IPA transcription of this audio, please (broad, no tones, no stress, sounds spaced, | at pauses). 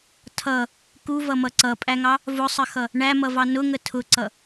tʰ ʌ | k u v ʌ m ʌ ǀ ʌ pʼ æ ŋ ɑ | v ʊ sˤ ə x ʌ | ɳ æ m ʌ v ɑ n ʊ ŋ ə tʰ ʊ ǀ ʌ